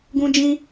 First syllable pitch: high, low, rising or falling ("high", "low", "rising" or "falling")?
high